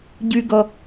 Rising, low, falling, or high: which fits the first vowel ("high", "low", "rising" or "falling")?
high